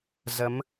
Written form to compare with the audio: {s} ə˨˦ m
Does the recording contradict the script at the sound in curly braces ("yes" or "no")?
yes